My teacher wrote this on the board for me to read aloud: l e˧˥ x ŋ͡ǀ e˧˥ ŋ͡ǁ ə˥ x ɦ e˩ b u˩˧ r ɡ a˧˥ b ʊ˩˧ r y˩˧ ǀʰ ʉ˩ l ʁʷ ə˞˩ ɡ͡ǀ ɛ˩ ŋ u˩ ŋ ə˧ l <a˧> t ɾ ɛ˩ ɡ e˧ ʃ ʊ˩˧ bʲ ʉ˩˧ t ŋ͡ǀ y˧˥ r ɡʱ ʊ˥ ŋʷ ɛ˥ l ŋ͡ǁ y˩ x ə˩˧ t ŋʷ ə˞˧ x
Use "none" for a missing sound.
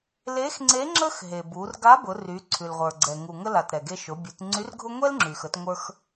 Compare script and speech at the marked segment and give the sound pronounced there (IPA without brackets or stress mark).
a˩